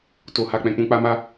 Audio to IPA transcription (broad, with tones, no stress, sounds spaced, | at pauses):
t o˨ h a˨ k͡p ɛ̃˨ k͡p ũ˧ k͡p a˧ m a˦